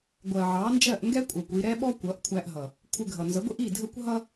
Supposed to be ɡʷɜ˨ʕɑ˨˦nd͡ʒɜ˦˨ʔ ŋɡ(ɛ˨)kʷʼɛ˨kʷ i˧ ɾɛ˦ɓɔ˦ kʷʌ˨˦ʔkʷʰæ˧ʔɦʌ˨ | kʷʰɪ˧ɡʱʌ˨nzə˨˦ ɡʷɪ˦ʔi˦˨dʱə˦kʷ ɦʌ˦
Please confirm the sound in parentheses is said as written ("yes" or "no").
no